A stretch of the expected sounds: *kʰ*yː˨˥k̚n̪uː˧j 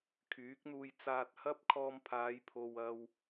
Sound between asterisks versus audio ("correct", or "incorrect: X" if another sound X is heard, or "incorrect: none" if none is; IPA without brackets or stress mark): correct